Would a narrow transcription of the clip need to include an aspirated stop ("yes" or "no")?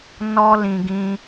no